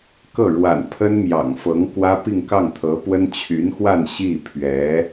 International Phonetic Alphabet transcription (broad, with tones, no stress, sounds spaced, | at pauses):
k ɤ˥˩ ɻ w a̰˨˩ n pʰ ə˥ n m j ɑ̰˨˩ ŋ f ɤ˧˥ ŋ k w ä˥ p i˥˧ ŋ k ɑ˥˩ ŋ t̪ʰ ɤ˧˥ p w ə˥ n t͡ɕʰ y˧˥ n x w a˥˧ n ɕ i˥˩ pʰ ɥ ɛ˧˥